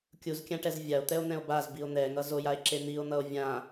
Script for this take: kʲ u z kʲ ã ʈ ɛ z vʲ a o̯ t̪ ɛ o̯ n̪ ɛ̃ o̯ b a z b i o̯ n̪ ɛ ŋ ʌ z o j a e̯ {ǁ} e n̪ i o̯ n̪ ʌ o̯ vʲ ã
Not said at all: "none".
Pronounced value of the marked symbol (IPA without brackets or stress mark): ǁ